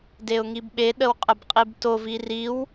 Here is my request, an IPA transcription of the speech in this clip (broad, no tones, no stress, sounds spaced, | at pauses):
d e ʊ̯ ŋ i b ɓ e ɗ ə w qʼ ə b qʼ i b t o v i r i w